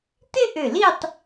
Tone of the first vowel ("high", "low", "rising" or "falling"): high